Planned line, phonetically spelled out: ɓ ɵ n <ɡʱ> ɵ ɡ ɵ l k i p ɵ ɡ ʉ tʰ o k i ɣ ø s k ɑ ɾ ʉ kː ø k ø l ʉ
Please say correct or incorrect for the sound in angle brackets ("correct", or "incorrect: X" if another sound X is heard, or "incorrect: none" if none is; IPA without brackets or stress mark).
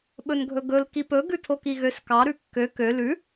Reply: correct